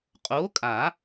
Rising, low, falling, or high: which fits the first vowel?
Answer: rising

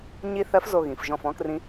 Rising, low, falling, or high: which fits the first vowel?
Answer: falling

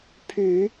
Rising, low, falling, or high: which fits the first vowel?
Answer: low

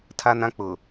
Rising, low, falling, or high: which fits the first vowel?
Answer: high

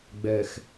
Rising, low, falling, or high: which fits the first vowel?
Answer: low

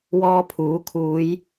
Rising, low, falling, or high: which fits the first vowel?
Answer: high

